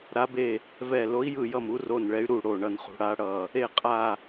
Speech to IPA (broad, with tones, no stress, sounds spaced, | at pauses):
ɾ a˧˥ b e˦˨ | v ɛ˦˨ l o˧˥ i̯ j ɯ˦˨ j ʌ˦˨ m u˧˥ r o˦˨ n ɭ ɛ˧˥ y̯ ɾ u˦˨ ɽ o˦˨ ɳ ʌ˦˨ n χ ṳ˧˥ ɽ a˧˥ ɽ ʌ˦˨ | e˦˨ qʼ a˦˨